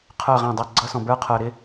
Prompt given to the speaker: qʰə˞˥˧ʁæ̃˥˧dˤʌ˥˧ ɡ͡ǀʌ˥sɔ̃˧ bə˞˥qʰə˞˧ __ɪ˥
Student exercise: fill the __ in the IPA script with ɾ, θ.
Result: ɾ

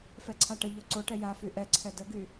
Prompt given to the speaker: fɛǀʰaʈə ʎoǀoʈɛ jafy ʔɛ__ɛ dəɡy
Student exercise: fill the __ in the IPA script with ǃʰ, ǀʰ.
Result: ǀʰ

